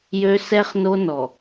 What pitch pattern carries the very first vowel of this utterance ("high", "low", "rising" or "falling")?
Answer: high